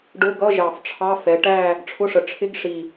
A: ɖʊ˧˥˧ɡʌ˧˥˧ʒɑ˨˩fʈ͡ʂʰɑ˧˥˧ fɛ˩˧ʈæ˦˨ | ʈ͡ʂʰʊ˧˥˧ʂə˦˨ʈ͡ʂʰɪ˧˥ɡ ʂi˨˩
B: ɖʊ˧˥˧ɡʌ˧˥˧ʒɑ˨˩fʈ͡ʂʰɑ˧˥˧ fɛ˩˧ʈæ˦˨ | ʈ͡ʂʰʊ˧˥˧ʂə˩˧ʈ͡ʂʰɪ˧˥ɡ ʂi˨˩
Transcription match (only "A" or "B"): B